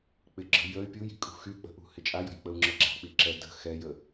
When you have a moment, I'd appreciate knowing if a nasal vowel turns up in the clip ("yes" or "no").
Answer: no